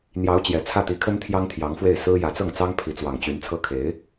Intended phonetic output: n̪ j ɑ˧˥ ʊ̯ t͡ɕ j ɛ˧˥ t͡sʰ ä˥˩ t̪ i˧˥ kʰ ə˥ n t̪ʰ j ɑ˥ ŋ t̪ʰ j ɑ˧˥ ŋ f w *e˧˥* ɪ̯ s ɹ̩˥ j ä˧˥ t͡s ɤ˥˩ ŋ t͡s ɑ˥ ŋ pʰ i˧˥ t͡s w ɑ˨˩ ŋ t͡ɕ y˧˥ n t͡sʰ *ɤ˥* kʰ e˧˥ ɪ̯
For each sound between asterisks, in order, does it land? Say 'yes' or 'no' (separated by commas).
no, yes